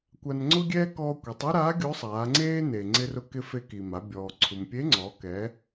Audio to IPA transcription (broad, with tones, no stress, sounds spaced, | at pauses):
kʷ a˧ n ŋ͡ǀ ʊ˥ ɡʲ ɛː˥ k ɔː˧ kʷ i˩˧ tˤ u˥ ɾ aː˧˥ ɡʲ o˧˥ sˤ aː˩˧ ŋ͡ǀ eː˥ n e˩ ŋ͡ǀ ɪ˧ r ʊ˧ k ɪ˧ f e˧ k i˩ m a˩˧ bʲ ɔː˩ ǀʰ u˩ m pʲ e˧˥ ŋ͡ǀ ɔː˩˧ k ɛ˩˧